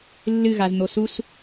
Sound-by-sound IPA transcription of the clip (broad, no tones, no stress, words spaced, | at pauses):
lːɨɣaz n̪osus